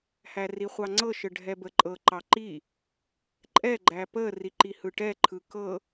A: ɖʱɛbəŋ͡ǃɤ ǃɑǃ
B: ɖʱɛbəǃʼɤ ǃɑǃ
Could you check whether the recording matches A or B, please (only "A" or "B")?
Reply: B